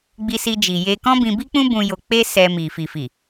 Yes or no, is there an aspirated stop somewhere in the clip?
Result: no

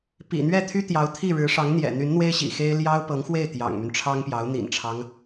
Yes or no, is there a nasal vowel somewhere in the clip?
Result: no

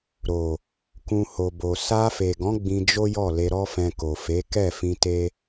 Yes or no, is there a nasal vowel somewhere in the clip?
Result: yes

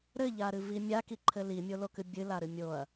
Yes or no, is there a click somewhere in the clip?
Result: yes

